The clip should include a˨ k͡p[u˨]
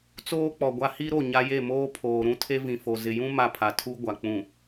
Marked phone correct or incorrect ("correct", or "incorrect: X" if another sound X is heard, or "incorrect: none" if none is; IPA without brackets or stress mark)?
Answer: incorrect: ũ˨